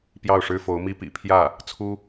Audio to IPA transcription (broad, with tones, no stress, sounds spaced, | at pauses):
p j ɑ˥˩ ʊ̯ ʂ ɻ̩˥ f o˧˥ ʊ̯ m i˥ p ḭ˨˩ pʰ j ä˥˩ | t͡sʰ u˥